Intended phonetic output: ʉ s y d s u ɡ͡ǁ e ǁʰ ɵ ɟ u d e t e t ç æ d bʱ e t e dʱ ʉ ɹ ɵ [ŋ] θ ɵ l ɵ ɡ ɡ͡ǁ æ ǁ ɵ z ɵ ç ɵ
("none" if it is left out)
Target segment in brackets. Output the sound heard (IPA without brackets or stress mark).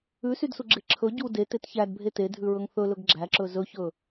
ŋ